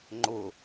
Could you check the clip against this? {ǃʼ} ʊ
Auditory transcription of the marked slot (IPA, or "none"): ŋ͡ǃ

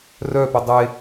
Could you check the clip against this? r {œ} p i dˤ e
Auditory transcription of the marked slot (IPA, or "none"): œ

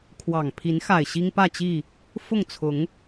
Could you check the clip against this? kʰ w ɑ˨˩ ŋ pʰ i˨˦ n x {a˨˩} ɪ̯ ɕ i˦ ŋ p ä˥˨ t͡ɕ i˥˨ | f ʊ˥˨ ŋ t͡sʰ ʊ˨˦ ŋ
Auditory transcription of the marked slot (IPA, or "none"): a˨˩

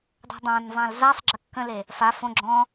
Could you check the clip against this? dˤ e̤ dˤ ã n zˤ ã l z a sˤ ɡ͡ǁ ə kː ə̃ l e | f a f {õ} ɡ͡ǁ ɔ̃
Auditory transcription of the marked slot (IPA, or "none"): õ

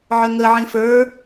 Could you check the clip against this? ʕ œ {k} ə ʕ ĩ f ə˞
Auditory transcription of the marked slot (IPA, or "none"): ŋ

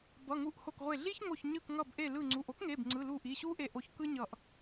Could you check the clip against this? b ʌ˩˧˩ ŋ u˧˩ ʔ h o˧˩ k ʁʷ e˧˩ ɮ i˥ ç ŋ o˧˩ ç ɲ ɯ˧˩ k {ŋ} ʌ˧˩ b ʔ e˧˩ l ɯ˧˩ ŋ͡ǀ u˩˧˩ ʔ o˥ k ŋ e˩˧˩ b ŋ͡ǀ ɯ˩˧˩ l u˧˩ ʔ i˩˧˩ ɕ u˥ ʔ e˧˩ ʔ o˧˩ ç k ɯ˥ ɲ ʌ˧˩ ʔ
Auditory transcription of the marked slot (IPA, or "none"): ŋ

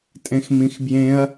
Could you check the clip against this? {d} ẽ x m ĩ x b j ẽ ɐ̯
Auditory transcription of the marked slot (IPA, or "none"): tʼ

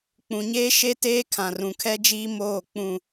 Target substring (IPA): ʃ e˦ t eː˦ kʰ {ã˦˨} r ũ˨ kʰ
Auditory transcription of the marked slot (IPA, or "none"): ã˨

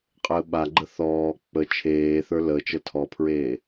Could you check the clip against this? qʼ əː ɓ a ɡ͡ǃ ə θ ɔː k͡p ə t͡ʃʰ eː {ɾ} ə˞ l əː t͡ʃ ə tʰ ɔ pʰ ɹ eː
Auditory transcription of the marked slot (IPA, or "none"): θ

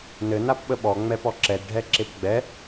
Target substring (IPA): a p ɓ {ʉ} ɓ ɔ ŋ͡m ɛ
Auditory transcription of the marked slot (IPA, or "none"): ə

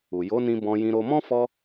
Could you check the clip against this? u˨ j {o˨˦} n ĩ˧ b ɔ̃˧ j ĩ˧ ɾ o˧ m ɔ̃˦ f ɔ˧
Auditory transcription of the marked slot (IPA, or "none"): o˨˦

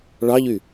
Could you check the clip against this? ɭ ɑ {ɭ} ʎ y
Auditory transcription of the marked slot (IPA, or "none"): none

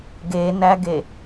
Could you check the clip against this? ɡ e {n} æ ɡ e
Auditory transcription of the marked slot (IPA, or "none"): n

